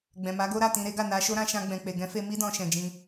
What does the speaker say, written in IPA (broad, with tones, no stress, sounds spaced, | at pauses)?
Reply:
ɡ͡b ɛ̃˨ m a˨˦ ɡ o˦ ɾ a˦˨ t ĩ˧ ɾ e˦ ɡ a˦˨ n a˧ ʃ o˦ ɾ ã˧ ʃ ã˧ ɡ͡b ɛ̃˨ k͡p e˨ ɡ ɛ̃˨˦ f e˧ m i˦ d ɔ̃˧ ʃ ɛ̃˨ d͡ʒ ĩ˧